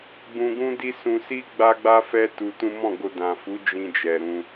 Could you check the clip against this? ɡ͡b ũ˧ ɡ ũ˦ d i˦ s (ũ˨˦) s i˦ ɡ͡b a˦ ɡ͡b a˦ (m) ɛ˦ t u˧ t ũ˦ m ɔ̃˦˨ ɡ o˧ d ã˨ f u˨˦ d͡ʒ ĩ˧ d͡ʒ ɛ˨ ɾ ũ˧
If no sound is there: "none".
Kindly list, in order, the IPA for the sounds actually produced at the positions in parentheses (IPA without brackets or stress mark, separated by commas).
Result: ũ˧, f